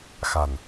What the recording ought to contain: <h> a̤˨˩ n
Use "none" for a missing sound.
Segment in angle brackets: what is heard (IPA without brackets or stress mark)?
x